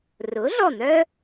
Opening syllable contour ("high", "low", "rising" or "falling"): rising